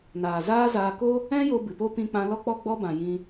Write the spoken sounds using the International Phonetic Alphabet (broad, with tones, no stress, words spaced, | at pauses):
naː˨zaː˦zaː˧ ko˦ | ɛ̃˦ jo˧bɨ˨po˦ pĩ˧k͡pã˧lɔ˦k͡pɔ˦ ɡ͡bɔ˧bã˨ jĩ˧